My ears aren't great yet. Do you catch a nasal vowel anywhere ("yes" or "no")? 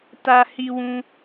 yes